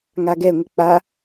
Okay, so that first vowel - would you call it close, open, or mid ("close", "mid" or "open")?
open